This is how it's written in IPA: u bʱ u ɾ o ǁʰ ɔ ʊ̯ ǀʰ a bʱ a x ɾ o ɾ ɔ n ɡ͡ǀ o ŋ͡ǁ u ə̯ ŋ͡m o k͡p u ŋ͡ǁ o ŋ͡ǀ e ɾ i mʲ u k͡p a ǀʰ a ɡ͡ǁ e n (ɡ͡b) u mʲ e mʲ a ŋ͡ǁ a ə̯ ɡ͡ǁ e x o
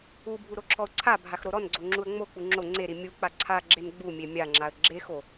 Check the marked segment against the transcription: correct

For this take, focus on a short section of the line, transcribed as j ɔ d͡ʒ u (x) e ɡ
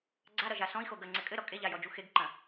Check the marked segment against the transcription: correct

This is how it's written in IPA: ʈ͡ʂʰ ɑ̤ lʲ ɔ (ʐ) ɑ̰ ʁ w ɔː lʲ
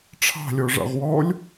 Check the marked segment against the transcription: correct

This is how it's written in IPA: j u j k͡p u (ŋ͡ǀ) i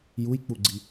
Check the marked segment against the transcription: incorrect: ɡ͡ǀ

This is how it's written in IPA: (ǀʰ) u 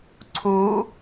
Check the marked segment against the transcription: correct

